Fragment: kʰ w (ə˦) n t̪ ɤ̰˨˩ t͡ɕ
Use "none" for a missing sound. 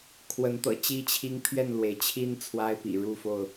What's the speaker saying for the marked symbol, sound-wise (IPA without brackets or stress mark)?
ə˨˦